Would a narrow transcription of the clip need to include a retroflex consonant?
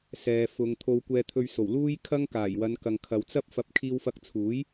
no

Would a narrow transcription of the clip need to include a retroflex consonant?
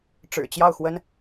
yes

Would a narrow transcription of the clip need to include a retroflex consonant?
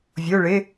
yes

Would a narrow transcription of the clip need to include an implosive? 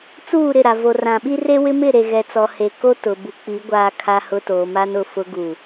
yes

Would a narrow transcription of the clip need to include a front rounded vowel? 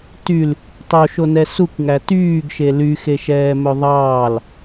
yes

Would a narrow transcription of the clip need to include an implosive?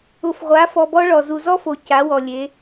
no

